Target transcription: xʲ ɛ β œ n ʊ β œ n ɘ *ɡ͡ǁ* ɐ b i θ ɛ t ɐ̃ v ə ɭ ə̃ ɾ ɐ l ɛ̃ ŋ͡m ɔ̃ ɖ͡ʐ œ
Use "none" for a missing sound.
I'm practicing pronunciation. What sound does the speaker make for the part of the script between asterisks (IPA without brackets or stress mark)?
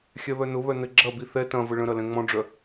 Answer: ɡ͡ǁ